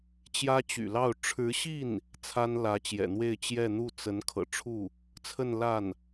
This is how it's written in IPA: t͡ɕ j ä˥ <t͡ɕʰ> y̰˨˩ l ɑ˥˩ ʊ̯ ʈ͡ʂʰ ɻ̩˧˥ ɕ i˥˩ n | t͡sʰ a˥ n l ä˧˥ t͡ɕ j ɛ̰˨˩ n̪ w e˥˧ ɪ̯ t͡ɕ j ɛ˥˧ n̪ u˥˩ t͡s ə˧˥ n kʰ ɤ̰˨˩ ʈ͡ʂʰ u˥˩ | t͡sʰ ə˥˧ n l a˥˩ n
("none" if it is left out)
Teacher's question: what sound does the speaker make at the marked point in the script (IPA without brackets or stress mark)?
t͡ɕ